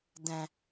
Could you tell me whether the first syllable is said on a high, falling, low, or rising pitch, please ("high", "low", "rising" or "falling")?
low